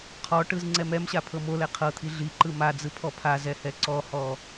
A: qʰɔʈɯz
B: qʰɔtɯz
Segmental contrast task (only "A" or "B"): A